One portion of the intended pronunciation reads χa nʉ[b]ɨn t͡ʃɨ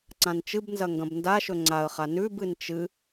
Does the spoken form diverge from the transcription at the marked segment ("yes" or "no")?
no